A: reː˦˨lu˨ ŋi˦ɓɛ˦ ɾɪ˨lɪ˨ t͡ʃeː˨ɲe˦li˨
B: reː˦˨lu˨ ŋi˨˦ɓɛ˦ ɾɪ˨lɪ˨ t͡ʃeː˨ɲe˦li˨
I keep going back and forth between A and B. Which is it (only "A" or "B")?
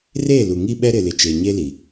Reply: A